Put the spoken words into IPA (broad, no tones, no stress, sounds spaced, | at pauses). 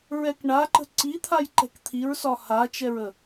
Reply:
ɹ ɛ k ɳ a ǃ ə̤ ǀ i t̪ʰ a j ǃ ɛ̤ k t̪ʰ i ɹ s ɒ h a t͡ʃ ɛ ɹ ə